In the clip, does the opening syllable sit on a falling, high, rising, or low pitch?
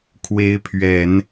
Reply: rising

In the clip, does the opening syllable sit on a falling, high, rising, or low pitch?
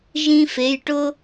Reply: high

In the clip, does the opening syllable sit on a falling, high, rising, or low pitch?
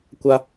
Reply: high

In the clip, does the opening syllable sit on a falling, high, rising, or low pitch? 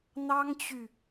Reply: high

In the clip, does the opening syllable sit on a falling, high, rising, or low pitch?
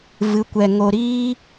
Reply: rising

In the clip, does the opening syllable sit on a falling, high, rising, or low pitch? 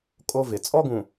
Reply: high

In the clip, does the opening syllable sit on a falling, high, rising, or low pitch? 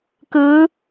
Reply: rising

